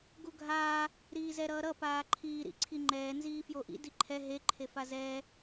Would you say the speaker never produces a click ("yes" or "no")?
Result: no